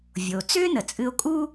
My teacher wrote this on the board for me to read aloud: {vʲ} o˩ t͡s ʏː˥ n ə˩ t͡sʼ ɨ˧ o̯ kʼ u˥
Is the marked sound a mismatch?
no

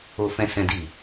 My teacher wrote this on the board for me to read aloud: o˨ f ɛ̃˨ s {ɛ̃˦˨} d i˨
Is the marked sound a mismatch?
yes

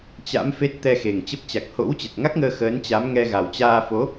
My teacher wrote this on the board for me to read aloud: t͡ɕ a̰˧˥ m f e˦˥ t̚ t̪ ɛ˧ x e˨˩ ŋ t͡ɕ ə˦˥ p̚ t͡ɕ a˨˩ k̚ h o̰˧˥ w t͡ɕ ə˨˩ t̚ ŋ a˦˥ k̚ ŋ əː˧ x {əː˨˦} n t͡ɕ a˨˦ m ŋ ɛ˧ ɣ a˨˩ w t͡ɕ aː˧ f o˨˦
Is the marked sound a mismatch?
no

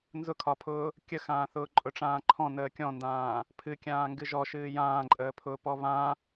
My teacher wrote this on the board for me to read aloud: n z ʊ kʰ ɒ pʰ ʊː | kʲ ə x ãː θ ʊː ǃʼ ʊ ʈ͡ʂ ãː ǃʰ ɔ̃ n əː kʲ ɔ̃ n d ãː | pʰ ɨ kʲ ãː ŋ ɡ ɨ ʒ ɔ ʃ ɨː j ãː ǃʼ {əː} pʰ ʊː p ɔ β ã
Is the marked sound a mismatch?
no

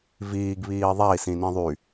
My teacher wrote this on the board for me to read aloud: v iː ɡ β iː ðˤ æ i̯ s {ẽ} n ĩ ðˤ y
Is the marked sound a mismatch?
yes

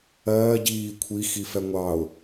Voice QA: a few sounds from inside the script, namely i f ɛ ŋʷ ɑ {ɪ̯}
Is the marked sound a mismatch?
yes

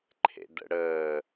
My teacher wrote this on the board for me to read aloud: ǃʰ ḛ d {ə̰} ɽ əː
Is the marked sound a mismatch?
no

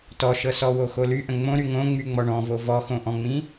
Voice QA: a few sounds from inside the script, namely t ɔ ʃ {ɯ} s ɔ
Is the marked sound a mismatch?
yes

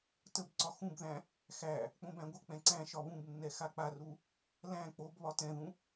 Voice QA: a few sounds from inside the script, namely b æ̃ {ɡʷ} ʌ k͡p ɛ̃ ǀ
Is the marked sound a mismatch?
no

